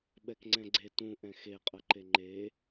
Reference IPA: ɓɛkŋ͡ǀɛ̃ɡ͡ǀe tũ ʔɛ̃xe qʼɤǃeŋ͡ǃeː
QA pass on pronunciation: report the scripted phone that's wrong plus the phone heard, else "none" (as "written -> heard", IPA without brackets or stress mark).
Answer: none